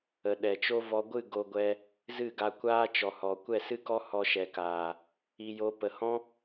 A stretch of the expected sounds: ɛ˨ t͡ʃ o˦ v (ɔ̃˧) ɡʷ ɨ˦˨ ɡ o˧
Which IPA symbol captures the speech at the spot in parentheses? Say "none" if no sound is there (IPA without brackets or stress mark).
ɔ˧